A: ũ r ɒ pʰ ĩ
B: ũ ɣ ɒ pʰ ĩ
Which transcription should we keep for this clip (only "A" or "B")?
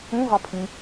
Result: B